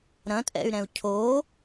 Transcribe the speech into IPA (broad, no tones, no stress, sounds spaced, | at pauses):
ɾ ɐ̃ tʼ ɛ̰ y̯ ɾ ɛ̃ u̯ cʰ o